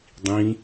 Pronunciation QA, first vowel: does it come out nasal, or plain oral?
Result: nasal